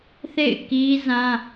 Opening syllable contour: falling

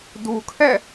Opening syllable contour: low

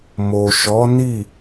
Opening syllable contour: low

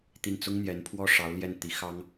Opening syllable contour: falling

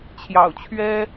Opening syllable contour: low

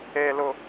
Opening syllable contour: low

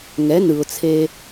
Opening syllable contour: rising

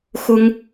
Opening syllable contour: high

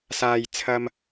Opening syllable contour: low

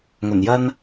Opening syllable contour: low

